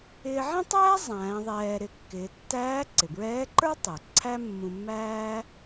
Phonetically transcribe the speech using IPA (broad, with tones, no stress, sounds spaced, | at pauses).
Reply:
ɪː˧ ʕ ĩ˥ tˤ æː˥ zˤ æ̃ː˩˧ ðˤ ɛː˧ ɾ ɪ˧ kː ɪː˩˧ tː æː˧˥ ǀ ɪ˩ b ɹ ɛː˧˥ ǃ ə˞˥ tˤ ɛ˩ ǀʰ æ˥ mː ũ˧ mː æː˥